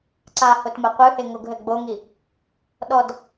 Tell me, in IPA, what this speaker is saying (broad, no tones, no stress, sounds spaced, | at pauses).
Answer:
ǀ a h o t m ɐ qʷ ɨ h e ŋ o ɡ ɦ ɘ ɡ͡b o ŋ i | ɗ ɔ d